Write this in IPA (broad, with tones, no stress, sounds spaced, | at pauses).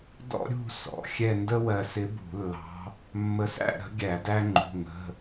d ɔ̰˥ ɾʲ ṳ˥˧ s ɔ̰˩˧˩ xʲ ɛ˥˧ n d ə˥ w ɜ˧ s ɪ˧˥ b ṳ˧˩˧ lː ɑ̤˧˥ | mː ə˧ s æ̰˥˧ ɾ ə̤˧˥ ɡʲ æ˧˩˧ d æ˥ ŋ͡ǃ ṳ˩˧˩ ŋ ə̤˩˧˩